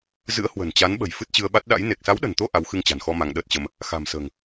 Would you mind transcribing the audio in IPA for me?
z ɨ̰˧˥ ə̯ h w ə̤˨˩ n t͡ɕ a˨˦ n ɓ ə̤˨˩ j f ɨ˦˥ t̚ t͡ɕ ɨ˧ ə̯ ɓ a˦˥ t̚ ɗ a̰˧˥ j n e˨˩ k̚ s a˨˦ w ɗ ə̤˨˩ n t̪ o˧ ʔ a˨˦ w x ɨ˧ ŋ t͡ɕ a̤˨˩ n x ɔ˧ m a˧ ŋ ɗ əː˦˥ t̚ t͡ɕ ə˧ m | x a̤˨˩ m s ə̤ː˨˩ ŋ

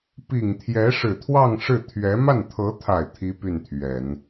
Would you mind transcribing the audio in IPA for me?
p i˨˩ ŋ t̪ʰ j ɛ˧˥ ʂ ɻ̩˨˩ t̪ʰ w ɑ˥˧ ŋ ʂ ɻ̩˥˩ t̪ʰ ɥ ɛ˧˥ m a˥˩ n t̪ʰ ɤ˧˥ t̪ʰ a˨˩ ɪ̯ t̪ʰ i˥ p y˥˩ n t̪ʰ ɥ ɛ˨˩˦ n

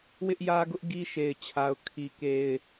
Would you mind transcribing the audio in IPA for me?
w ɪ˦ ʔ j ä˦ ɡ ʊ˦ ʔ ɡ i˦ ʃ e˨ ɪ̯ t͡ɕʰ a˦ ʊ̯ kʰ i˦ k e˦ ɪ̯

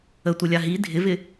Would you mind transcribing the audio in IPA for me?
ə tʷ ə lʲ a ɦ i dʱ ɪ v ɪ

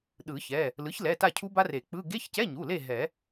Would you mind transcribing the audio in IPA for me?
ɗ ɯ˨˩˦ ç ɛ˩˧˩ | l ɯ˩˥ ç l ɛ˩˧˩ t a˦˨ cʰ u˦˥ b a˦˥ r e˨˩˦ k͡p ɯ˧˥˧ ɡ e˧˥˧ ç c ɛ˧˥˧ ɲ u˩˧˩ l e˦˨ ɦ ɛ˨˩˦

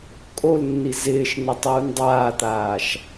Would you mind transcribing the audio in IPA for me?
kʼ o l nː i z ɪː ʃ n ɪ tˤ uː n dˤ aː t̪ aː ʃ

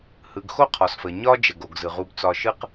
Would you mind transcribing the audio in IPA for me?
h ɯ˩ ɡ x o˥ qʰ ɒ˩ s f ə˩ ɲ ɒ˥ d͡ʒ ə˩ ɡ o˩ ɡ z ɯ˩ ʁ u˨ b t͡s ɒ˨ ʃ ɯ˦ q

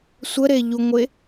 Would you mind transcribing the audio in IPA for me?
sʷ ə ɾ e ʎ u ŋʷ e

